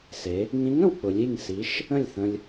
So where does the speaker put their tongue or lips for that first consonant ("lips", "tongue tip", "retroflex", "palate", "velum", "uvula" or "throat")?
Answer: tongue tip